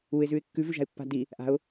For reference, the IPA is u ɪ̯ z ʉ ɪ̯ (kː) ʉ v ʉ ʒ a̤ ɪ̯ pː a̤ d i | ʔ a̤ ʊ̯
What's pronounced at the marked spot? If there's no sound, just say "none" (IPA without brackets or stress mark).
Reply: kː